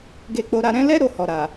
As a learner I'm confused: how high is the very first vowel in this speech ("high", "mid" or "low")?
mid